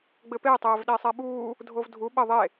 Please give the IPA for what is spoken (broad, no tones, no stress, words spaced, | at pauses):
ɡ͡bɘpe tˤɘːvɗesˤɛɓuː | dʱovdʱu ɓɘ ðˤe